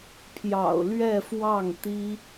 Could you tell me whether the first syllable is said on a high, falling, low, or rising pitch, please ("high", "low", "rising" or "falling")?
low